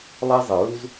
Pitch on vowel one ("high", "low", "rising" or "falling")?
high